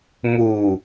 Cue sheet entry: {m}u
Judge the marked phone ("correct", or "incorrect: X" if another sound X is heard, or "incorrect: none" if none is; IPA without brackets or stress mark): correct